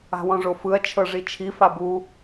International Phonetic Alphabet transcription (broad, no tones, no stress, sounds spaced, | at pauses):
a̤ w ɔ̃ ʐ o f ɯ ɐ̯ t͡ʃʰ ɤ ʐ i t͡ʃʰ i f a b u